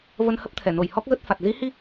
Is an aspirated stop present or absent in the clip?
present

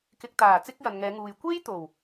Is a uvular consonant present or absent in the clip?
absent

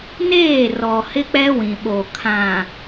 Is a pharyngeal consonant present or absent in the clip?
absent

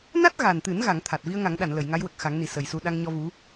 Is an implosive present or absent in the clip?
present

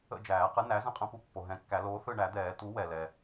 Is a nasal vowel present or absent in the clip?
present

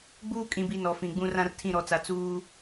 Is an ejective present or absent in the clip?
present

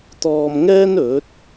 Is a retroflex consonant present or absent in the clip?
absent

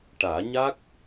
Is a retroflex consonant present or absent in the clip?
present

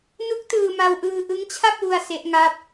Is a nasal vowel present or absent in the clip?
absent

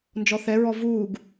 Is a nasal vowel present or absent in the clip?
absent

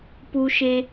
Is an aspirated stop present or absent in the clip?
absent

